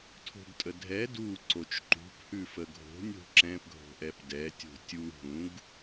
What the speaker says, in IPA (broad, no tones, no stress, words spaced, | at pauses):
tʰo̤ɡtʼədʱɛ du ǀot͡ʃǃṳp hʉfəɡʱo̤ nʲo̤ǁɛ̃p ɡʱo̤ʔɛpdɛ tʲo̤tʲu ɦũɡ